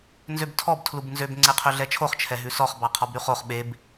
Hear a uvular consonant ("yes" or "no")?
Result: yes